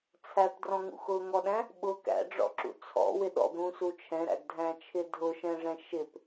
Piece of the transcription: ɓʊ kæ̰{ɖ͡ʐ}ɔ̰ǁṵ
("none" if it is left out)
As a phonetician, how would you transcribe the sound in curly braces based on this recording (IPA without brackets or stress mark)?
ɖ͡ʐ